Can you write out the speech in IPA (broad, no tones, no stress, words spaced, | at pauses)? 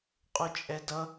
qʼʊt͡ʃʼɛdʌ